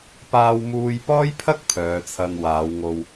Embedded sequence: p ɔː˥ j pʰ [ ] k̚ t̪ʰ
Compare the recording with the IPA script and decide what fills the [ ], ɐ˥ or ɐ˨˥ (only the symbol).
ɐ˥